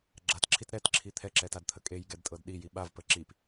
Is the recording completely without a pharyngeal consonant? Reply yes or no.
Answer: yes